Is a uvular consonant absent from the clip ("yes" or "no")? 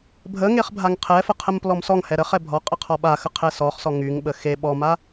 no